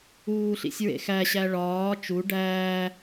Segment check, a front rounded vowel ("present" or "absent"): absent